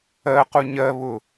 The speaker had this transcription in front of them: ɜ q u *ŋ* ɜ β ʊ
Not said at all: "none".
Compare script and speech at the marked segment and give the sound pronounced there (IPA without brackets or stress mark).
ɲ